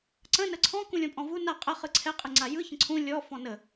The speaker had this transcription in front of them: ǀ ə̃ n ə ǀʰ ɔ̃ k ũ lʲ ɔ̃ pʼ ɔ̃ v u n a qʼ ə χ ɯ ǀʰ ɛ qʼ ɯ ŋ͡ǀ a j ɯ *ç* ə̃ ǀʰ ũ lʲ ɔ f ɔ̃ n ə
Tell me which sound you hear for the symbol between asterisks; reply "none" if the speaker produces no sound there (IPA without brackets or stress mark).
ç